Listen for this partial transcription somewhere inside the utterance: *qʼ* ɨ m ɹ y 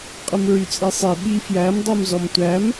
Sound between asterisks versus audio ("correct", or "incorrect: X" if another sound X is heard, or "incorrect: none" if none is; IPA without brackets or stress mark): correct